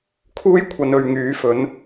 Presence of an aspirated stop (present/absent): present